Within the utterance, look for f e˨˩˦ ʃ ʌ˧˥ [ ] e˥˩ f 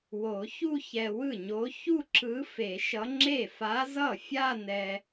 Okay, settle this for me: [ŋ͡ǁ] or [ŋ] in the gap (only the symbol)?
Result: ŋ͡ǁ